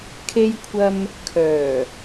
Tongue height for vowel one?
mid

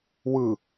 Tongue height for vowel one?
high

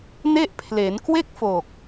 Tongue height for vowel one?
mid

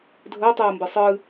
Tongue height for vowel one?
mid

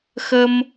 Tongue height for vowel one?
mid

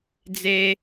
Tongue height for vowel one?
mid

